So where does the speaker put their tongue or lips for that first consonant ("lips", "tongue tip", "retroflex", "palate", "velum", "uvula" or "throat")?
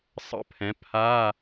tongue tip